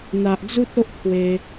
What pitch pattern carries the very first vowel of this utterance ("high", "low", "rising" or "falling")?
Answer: low